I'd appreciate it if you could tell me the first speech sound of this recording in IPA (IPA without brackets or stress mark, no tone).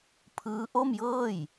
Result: pʰ